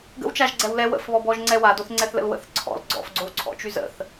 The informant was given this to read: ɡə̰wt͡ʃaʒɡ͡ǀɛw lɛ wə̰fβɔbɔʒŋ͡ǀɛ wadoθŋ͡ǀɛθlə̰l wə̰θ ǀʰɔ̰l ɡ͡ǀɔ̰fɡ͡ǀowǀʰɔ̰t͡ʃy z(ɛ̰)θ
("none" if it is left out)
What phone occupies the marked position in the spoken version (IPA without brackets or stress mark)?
ə̰